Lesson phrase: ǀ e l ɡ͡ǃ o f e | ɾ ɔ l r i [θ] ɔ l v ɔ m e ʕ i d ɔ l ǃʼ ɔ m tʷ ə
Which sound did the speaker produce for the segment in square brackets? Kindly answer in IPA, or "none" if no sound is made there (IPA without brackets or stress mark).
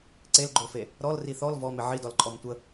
θ